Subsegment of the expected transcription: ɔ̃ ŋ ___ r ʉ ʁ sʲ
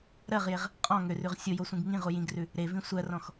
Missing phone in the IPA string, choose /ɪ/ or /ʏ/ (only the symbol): ʏ